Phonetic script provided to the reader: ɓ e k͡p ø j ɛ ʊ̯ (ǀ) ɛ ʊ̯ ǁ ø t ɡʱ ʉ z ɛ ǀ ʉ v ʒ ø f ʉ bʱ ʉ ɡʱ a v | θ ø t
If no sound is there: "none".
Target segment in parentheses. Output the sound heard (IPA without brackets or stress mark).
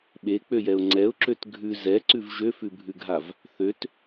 ŋ͡ǀ